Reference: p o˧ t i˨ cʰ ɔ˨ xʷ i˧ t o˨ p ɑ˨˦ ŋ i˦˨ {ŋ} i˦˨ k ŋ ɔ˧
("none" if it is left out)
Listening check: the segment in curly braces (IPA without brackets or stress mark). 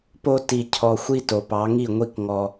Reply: ŋʷ